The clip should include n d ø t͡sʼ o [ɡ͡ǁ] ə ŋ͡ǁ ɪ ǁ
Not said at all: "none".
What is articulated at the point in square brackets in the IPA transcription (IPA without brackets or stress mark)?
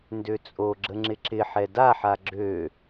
ɡ͡ǁ